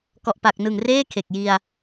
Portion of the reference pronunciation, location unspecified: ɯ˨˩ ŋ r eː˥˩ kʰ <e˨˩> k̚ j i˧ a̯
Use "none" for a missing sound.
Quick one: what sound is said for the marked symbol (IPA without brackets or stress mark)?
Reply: e˨˩